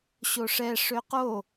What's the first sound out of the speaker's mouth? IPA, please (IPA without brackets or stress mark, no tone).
ɕ